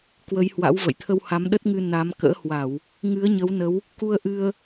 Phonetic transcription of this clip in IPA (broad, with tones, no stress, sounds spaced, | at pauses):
k w ə˨˦ j h w a̰˧˥ w v ə̰˧˨ j t̪ʰ ə˧ w h a˨˦ m ɗ ə˦˥ t̚ ŋ ɨ˧ n a˨˦ m k ə̰ː˧˥ h w a˧˩˨ w | ŋ ɨ˨˦ ə̯ ɲ ə˨˦ w n ə˨˦ w | k u˧ ə̯ ʔ ɨ˧ ə̯